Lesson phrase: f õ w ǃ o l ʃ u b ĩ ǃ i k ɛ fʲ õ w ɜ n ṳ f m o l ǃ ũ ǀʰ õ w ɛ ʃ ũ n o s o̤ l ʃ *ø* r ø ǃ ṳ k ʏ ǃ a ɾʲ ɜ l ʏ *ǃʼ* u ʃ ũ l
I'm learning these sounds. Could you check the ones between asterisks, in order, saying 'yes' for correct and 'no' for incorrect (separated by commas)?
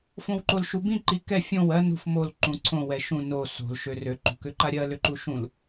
yes, no